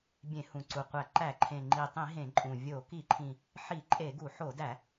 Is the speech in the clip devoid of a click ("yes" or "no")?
no